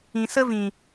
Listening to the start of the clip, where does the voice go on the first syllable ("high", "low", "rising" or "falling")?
low